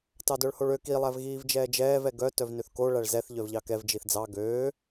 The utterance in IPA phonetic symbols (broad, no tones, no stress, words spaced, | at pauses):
tɑdœɭhoɭø ki lˠævɣiːvd͡ʒɛːd͡ʒɛːv ɛɡœ tœvnøθko ɭæɭzɛθ ʎœvʎɑkɛv d͡ʒiθd͡zɑ ɡøː